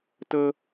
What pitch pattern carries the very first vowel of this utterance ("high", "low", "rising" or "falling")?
high